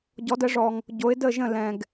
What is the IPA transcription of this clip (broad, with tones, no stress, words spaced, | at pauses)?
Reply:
ɟɔ˩˥də˩˥ʐɔ˨ŋ | ɟo˩˥ɪ̯də˥˩ʒə̃˥˩ lɛ̃˨ɡ